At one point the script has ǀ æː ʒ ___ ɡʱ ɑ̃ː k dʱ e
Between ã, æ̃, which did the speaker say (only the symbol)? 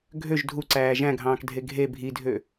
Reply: æ̃